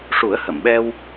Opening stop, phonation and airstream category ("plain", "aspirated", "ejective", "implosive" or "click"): implosive